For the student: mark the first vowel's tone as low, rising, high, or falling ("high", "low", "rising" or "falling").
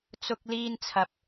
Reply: high